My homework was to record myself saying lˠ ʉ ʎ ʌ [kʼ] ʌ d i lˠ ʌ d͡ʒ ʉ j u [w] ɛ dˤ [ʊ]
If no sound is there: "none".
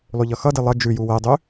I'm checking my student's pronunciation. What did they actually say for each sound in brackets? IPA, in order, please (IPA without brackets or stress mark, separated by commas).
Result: x, w, ʉ